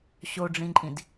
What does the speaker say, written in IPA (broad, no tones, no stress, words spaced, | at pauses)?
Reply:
ɕoɖ͡ʐĩǃʼĩd